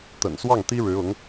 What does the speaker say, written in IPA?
t̪ ə̰˨˩ n s w ɑ˥˩ ŋ t̪ i˥ ɻ ɻ̩˧˥ ʊ˧˥ ŋ

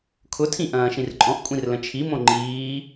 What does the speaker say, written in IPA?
kʰ ʊ tʰ ĩ ʔ ɐ̃ː ʃ ĩ r ǃʼ ɔ̃ ʔ kʷʼ ĩ r l ə̃ t͡ʃʰ i m õ ŋ͡ǃ iː

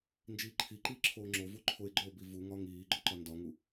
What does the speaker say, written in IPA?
n d͡ʒ iː ǃʰ i ǃ iː ǁʰ oː ŋ͡ǁ o v u ǃʰ o e̯ ɡ͡ǃ o b i v u ŋ ɒ ŋ iː ɡ͡ǃ o ǃ ɒ n d ɒ ŋ u

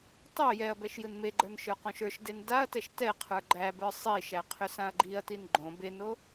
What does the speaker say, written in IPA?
tˤ o j ɛ ɐ̯ b ɛ ʃ j ɯ n m e ɡ͡ǃ ə˞ n ʃ ə˞ q õ ʃ ə˞ ʃ d e n d a ɐ̯ t ɛ ʃ t ɛ qʰ ə˞ ɡ͡ǃ æ b ə˞ sˤ i ʃ æ qʰ ʏ s ã ɐ̯ ɡ͡ǃ i ɐ̯ t i n ɡ͡ǃ õ b e n o

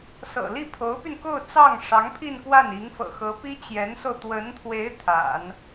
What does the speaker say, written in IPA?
s ɤ̰˨˩ l i˥˩ pʰ o˧˥ ʊ̯ p y˧ n k o˥˧ ʊ̯ t͡s ɑ˥˩ ŋ ʂ ɑ˧˥ ŋ pʰ i˥˧ n k w a˥˩ n i˧˥ ŋ f ɤ̰˨˩ x ɤ˧˥ p i˥ t͡ɕ j ɛ˧˥ n s o˧ ʊ̯ t̪ w ə˧˥ n t̪ʰ w e˧˥ ɪ̯ t̪ʰ a̰˨˩˦ n

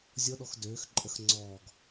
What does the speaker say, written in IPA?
zʲ ɔ ɗ ɔ x d øː x ǃʼ ə x ŋ͡ǀ ɔː ɡ

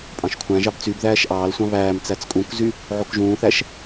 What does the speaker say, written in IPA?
pʼ ɑ̃ ʃ kʷʰ æ̃ ʒ ɑ b t͡s y b ð æː ʃ ʔ ɑː l sʷ ɑ̃ β æː m t͡s æ t͡s kʼ ũ k z y | ʕ o k ʒ ũː θ æ ʃ

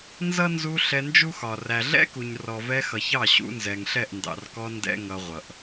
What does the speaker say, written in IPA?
n z ʌ˦ n z u˧ ɬ ɛ˧ n d͡ʒ u˦ x ɒ˨ r æ˨ ɮ ɛ̰˦ k u˨ ɲ r ɔ˨ v ɛ˧ x ʌ˨ ç ɑ˦˨ ɕ ṵ˧ n z ɛ˨ ŋ ɬ ɛ˦˨ ʔ n d ɑ̰˨ r k ɔ˧ n d ɛ̰˦ ŋ ʌ˧ ʁʷ ʌ˨ ʔ

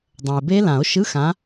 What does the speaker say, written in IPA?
dˤ ɛ̃˩ e̯ b e˦˥ l ã˨˩˦ o̯ ʃ ɯ˧˥˧ x ã˨˦

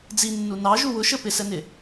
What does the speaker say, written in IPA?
d͡z i nː u n ɑ ʒ u w ʊ ʃ ə p ɪ s ɛ n ɪ

